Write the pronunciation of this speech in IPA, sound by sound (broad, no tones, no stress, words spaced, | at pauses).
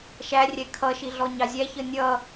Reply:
ʃærʲɛ kʰʌʃi ɮɔɲɑzʲæ çənʲʌ